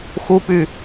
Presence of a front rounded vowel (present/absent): present